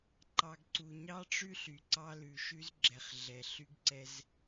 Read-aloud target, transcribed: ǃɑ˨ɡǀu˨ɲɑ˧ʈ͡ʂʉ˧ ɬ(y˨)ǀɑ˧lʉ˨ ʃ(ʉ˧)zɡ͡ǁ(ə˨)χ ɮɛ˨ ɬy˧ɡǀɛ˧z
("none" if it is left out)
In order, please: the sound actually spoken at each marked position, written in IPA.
y˨, ʉ˧, ɛ˨

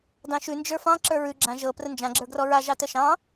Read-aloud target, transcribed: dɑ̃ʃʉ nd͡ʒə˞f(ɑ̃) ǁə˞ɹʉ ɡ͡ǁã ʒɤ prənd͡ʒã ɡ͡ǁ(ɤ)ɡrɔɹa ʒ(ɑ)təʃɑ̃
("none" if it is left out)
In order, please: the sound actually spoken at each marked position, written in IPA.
ɑ̃, ə˞, ɑ

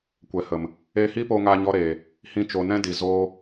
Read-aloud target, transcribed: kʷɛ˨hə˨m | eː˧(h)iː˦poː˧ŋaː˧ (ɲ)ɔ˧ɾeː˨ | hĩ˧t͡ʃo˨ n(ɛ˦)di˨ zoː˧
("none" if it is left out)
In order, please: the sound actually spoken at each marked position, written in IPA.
h, ɲ, ɛ̃˦

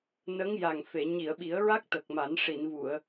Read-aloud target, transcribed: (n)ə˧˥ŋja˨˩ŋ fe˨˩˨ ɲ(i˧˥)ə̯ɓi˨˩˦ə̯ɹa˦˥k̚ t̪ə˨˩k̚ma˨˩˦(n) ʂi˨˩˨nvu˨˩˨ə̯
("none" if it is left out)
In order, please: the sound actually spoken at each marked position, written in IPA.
n, i˨˩˨, n

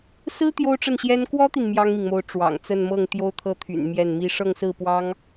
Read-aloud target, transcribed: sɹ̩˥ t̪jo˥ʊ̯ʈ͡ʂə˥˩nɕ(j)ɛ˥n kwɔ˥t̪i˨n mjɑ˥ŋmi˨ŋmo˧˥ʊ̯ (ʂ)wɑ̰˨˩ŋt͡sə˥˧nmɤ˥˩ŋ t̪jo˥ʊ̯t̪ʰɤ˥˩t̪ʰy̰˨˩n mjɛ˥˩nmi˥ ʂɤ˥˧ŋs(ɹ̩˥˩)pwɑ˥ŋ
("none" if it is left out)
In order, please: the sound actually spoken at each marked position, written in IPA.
j, ʈ͡ʂ, ɹ̩˥˩

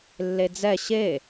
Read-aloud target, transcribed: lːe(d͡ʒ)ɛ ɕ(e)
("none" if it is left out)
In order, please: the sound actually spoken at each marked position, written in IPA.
d͡z, e

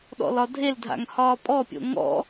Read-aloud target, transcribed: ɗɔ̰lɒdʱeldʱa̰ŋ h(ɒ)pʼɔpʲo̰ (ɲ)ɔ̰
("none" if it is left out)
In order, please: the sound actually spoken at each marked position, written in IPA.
ɒː, ŋ

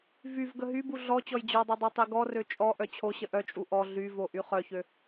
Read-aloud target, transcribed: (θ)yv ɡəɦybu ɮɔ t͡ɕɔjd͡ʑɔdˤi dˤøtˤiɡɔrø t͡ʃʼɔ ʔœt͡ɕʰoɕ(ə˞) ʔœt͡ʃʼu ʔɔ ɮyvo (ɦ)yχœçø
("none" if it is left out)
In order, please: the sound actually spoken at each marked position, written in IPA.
v, ə, ʔ

